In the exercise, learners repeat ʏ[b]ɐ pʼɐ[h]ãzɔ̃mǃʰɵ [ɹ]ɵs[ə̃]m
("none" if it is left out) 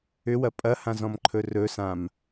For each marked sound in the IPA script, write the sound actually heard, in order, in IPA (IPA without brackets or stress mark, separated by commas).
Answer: w, h, r, ã